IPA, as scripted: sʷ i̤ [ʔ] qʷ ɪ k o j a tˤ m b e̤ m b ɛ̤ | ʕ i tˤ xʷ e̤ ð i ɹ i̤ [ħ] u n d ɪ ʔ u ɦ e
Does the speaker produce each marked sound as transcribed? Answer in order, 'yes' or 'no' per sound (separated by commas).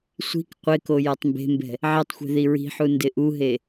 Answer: no, yes